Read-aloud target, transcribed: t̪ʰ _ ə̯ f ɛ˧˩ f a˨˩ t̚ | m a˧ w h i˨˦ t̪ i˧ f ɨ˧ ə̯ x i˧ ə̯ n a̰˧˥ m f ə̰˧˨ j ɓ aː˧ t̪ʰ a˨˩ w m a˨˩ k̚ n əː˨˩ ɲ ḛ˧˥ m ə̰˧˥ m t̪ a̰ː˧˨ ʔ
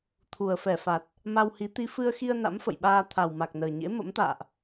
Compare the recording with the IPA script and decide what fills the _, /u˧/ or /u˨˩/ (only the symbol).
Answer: u˨˩